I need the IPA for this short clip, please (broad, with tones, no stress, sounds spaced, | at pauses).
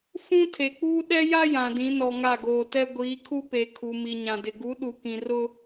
f ũ˦ tʰ e˨ k͡p uː˦ ɗ ɛ˦ j a˦ j ã˨ d ĩ˨˦ n ɔ˨ ŋ a˦˨ ɡ oː˨ t ɛ˦ ɡʷ iː˨˦ kʰ u˦ p e˨ kʰ u˨ m i˨ ɲ ã˨ d ɪ˨ ɡ u˨˦ ɗ u˨ k ĩ˨ r ʊ˦